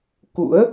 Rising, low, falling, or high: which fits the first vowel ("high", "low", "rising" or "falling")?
rising